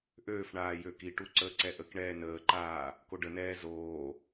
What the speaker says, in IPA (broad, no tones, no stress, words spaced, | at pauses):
ʔøːfɳaː jøkiʈu ǀəːǀɛʔəkɳɛː nəːǃaː | koɖənɛː zoː